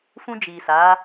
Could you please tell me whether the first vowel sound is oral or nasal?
nasal